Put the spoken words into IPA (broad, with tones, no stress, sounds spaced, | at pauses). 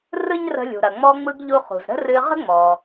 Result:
r ɯ˥ ɲ r ə̤˧ lʲ ṳ˩ ɾ ɐ˩ ŋ͡m ɔ˧ ŋ͡m ɯ˧ ɡ ʎ u˧ χ ṳ˩ z ɾ ə̤˥ r ɨ˧ ʁ ə̤˥ ŋ͡m ɔ˩